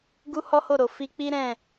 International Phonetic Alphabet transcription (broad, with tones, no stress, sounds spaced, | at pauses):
ɡ u˦ h ɔ˦ h o˦˨ ɾ o˨ f i˧ k͡p i˦ ɾ ɛ̃˦˨